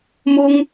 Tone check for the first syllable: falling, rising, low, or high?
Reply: high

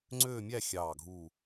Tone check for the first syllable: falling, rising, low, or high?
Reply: falling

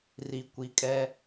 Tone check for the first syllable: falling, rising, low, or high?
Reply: low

